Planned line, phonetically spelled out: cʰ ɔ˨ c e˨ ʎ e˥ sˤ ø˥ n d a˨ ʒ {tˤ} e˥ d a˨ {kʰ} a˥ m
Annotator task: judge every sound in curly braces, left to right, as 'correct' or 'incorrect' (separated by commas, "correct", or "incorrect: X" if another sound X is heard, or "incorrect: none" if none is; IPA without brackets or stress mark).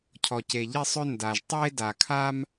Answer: correct, correct